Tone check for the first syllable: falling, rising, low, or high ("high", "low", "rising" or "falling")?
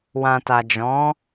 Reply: low